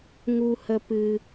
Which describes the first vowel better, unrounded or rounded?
rounded